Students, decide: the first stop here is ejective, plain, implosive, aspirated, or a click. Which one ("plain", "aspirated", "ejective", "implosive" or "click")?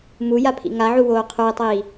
aspirated